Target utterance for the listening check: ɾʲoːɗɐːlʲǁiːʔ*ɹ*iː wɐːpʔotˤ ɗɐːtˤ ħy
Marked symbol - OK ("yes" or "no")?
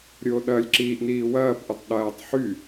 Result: no